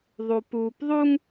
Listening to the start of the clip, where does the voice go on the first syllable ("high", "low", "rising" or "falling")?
low